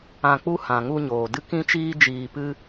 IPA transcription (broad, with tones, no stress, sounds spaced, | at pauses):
ã˧ k͡p u˦ h ã˨ ŋ u˧ ɲ oː˨ d ɨ˦ k ĩ˦ t͡ʃ iː˦ d͡ʒ iː˧ p ɨ˦